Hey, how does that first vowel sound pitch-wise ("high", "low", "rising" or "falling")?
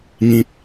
low